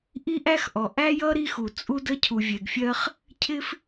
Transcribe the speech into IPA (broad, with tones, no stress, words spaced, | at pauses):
ʔi˥ʔæ˥xʔɔ˩ ʔæ˥jʌ˥ ɾi˥xu˩t͡sʼu˥də˥ cʰu˩vʲɛ˩ɡfʲɜ˥χ | cʰɪ˥f